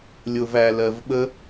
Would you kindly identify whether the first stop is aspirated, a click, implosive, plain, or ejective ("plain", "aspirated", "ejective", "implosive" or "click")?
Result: implosive